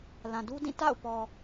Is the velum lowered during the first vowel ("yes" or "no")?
yes